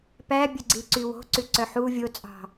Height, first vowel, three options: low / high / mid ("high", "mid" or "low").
low